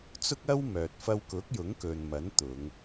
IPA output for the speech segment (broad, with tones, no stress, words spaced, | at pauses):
t͡sʊ˥k̚ɐ˥wmœː˨t̚ fɐ˧wkʊ˨˥k̚jʊ˨˥ŋkɵ˨n mɐ˨˥nt̪ʊ˨˧ŋ